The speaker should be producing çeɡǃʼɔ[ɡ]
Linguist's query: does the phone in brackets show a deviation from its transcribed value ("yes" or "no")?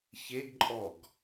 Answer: no